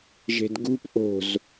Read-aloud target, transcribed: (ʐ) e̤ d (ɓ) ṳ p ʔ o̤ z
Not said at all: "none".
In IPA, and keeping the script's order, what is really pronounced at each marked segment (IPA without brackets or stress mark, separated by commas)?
ʒ, ɡ